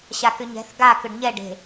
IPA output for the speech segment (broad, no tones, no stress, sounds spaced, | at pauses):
ɕ a k ʏ ɲ ɛ̤ θ ɡ a k ʏ ɖ ɲ ɛ ɖ e̤